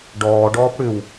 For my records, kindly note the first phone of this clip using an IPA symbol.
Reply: ɖ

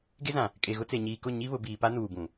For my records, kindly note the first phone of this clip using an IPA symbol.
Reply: ɡ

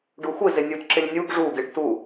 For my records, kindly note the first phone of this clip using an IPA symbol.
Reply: ɖ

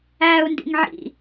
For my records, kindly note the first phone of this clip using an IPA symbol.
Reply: æː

